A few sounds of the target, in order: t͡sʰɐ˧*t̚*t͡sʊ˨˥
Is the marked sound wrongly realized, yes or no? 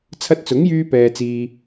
no